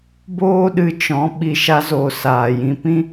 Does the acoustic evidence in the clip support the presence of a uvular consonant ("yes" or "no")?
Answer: no